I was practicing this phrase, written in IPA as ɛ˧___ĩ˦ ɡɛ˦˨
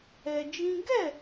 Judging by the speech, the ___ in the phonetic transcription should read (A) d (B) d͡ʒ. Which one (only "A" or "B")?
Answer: B